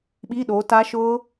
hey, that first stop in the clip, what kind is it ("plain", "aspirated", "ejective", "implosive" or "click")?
implosive